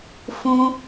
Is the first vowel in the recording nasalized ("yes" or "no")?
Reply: yes